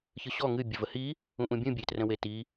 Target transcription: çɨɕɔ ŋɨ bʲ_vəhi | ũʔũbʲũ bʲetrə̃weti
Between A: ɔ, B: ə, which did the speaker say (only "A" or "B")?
B